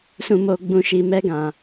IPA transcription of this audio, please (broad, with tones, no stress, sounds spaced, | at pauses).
s ũ˨ m o˨ ɡ͡b ũ˨ ʃ i˨ m ɛ˧ ɡ ã˨